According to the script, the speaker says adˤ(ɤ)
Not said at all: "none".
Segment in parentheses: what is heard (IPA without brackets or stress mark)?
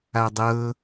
ɤ